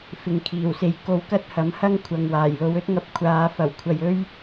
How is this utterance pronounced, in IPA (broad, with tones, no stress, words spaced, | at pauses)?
fɪ˨ŋkʰiː˨˩wse˨j ko˧wkɐ˥t̚hɐ˨˥m hɐ˥ŋkʷʰɐ˨ŋ waː˨˩jlo˨˧wɵ˥t̚ŋɐ˧p̚ kʷʰaː˨˧ fɐ˨˩w kʷʰɐ˨j ɵ˥ɥ